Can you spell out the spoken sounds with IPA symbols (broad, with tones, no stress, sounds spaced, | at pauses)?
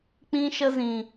k͡p ĩ˦ ʃ ə˦ z ĩ˨